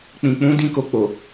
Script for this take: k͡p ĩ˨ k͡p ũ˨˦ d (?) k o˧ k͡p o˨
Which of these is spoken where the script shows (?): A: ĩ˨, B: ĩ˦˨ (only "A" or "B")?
B